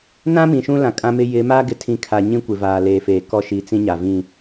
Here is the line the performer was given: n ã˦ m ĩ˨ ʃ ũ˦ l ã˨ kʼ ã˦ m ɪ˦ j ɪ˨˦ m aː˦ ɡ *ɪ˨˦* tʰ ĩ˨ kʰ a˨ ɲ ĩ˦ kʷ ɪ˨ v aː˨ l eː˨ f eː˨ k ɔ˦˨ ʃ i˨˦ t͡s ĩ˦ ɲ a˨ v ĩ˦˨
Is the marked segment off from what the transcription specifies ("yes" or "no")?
no